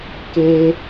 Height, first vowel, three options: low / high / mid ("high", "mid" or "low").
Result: mid